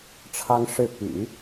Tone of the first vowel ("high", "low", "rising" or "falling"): high